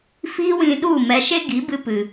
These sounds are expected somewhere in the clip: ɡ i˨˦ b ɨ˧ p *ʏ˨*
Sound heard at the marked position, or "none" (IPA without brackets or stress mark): ɨ˨